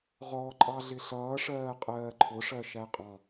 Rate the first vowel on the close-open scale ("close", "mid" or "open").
mid